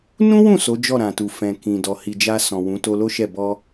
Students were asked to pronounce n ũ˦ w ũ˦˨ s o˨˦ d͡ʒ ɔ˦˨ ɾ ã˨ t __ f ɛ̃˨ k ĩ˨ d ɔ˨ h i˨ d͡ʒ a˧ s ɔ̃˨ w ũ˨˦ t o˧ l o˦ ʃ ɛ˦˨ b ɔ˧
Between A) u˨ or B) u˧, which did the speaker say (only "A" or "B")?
A